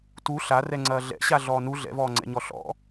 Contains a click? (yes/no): yes